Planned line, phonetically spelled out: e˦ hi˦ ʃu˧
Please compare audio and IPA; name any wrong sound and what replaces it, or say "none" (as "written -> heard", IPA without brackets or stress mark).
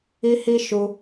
e˦ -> i˦